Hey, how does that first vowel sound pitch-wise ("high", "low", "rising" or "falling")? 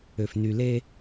low